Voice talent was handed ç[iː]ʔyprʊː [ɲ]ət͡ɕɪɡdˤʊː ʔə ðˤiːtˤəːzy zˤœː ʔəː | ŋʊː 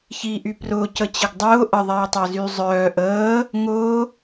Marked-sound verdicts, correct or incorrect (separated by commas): correct, incorrect